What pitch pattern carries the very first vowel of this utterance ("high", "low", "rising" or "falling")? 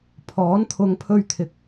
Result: rising